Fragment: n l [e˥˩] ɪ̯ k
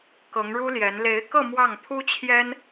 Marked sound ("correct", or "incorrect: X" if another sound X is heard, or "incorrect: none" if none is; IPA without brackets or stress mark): incorrect: e˧˥